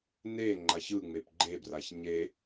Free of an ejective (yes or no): yes